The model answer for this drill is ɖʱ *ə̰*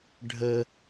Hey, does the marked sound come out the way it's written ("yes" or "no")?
no